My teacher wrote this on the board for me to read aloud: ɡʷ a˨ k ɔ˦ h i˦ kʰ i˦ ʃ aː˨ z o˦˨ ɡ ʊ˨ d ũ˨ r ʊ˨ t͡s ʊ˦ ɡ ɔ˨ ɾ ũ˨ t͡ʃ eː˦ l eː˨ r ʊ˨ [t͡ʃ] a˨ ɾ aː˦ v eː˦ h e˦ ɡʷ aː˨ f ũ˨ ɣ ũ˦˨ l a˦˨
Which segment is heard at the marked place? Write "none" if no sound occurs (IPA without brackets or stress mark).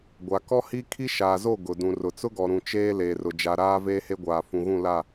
d͡ʒ